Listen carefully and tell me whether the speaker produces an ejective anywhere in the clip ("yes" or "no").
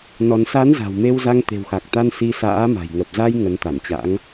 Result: no